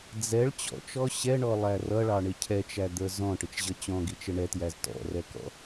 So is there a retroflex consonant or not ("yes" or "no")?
yes